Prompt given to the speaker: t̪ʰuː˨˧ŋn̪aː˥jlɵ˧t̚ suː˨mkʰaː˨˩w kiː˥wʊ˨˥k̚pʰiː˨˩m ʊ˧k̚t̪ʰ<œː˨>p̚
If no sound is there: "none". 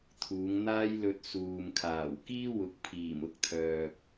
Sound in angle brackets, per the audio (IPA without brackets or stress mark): œː˨